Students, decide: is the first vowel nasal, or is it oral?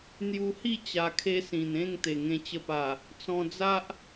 oral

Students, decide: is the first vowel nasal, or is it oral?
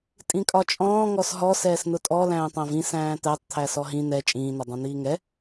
nasal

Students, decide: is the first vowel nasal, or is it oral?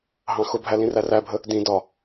nasal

